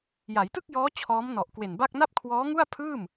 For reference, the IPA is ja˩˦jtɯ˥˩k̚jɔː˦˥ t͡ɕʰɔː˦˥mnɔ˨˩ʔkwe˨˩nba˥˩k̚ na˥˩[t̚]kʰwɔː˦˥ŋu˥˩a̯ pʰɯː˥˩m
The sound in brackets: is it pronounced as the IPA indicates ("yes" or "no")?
no